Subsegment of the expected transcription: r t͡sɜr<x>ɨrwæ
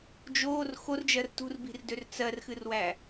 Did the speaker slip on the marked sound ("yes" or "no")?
no